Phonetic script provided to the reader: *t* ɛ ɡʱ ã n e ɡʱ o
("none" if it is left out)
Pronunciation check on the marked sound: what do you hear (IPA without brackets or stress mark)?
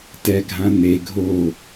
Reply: t